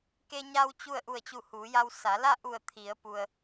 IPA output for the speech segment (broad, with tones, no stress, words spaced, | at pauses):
ke˧ɲa˧w t͡ɕu˥˨ə̯ ʔu˧˩ə̯t͡ɕu˧˩ huː˩˧ja˧w sa˩˧ la˥˨ʔu˧˩ə̯ t̪ʰi˩˧ə̯pu˩ə̯